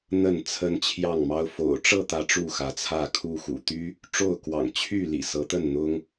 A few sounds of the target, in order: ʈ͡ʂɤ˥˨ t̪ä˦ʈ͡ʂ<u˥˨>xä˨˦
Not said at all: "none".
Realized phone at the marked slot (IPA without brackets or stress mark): u˥˨